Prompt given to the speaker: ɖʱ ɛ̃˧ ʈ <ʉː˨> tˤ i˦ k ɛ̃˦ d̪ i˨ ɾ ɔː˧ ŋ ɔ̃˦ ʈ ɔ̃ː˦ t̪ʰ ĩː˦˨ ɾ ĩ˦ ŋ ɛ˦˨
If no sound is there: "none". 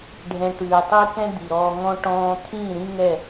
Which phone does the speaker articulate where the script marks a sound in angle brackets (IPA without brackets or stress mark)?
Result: ʉː˨